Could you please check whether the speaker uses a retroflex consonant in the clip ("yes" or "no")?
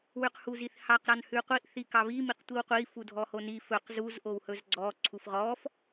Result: no